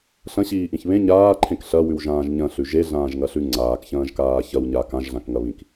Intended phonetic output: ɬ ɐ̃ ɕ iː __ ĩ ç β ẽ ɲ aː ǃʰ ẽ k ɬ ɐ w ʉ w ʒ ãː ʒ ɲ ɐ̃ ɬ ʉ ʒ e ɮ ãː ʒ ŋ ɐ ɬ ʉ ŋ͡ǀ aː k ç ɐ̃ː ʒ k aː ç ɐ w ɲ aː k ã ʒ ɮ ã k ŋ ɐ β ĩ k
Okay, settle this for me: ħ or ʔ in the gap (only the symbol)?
ʔ